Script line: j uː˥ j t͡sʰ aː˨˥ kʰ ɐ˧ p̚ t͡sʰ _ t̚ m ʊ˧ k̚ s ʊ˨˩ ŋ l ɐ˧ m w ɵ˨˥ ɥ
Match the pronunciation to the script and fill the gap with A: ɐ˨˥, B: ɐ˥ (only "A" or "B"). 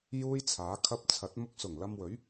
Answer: A